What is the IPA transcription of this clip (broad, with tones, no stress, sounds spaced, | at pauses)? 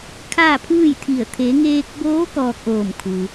kʰ aː˥˨ pʰ ɯː˥˨ j t̪ʰ i˧˩ ə̯ t̪ʰ e˩˧ ŋ eː˧ k̚ b oː˧˥ k ɔː˧ k̚ ʔ oː˧˩ m kʰ u˩